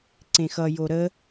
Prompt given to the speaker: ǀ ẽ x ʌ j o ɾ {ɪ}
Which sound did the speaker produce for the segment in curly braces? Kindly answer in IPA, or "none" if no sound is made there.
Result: ə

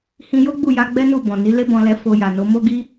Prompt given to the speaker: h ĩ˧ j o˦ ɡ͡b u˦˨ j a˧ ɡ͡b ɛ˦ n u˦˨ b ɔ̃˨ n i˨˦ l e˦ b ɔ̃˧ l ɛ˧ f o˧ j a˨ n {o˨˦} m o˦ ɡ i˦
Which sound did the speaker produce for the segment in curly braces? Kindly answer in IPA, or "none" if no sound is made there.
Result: o˨˦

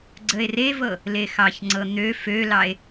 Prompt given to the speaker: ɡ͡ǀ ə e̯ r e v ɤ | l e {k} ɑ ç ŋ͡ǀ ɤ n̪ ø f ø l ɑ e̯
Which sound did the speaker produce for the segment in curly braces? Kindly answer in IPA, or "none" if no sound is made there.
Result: x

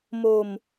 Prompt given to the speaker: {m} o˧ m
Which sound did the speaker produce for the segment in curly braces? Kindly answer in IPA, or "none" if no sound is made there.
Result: m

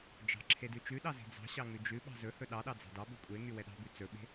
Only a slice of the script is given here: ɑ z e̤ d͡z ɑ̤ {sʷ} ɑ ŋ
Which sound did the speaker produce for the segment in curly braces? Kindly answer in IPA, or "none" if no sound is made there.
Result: ɕ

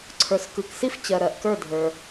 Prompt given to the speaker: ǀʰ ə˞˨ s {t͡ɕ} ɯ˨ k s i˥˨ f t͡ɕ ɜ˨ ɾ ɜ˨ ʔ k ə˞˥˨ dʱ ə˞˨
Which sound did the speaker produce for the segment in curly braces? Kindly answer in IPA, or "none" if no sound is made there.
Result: k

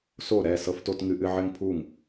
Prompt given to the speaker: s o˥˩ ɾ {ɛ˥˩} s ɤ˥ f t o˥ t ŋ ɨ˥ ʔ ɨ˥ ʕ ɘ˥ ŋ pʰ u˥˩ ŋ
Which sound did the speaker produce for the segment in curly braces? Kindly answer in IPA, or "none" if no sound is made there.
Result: ɛ˥˩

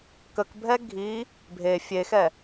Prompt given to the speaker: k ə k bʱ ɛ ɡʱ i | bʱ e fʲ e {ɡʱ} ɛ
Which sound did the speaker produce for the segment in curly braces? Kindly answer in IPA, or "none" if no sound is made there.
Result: x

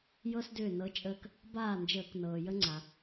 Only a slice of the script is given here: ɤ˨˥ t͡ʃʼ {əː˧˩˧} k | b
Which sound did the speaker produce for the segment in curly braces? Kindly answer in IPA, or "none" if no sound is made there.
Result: əː˧˩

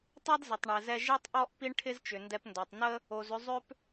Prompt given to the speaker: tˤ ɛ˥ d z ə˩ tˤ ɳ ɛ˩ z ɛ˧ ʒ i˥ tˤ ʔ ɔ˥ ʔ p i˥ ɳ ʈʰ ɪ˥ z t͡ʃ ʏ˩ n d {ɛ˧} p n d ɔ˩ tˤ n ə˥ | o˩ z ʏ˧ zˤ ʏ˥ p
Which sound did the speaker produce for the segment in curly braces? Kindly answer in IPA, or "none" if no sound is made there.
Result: ɛ˧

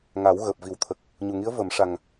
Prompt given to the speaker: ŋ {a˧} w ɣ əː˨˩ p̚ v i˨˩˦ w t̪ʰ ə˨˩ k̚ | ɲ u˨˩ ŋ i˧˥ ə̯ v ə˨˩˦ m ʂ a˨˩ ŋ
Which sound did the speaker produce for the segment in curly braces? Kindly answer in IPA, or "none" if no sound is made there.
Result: a˨˩˦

